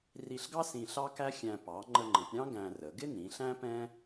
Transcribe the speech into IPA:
r i˧ ɬ ɡ ɑ˥ s ĩ˧ ɬ ɑ˥ k æ˥ xʲ æ̃˧ p ɑ˩˧ ŋ͡ǃ ə˧ ŋ͡ǃ ə̃˩˧ p ɾʲ ɑ̃˥ ɡ æ̃˧ r ə˩˧ ɡ ɪ˥ n ĩ˩˧ ɬ æ̃˥ p ɛ̃˥

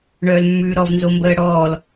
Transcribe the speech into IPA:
ɳ œː l mː ʉː ɾ ɔ v n z o m b əː ɽ ɔː l

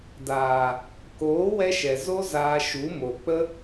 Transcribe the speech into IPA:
d aː˨ | k oː˨˦ w ɛ˧ ʃ ɛ˨ z o˦ z aː˧ ʃ u˨˦ m o˨ k͡p ə˦

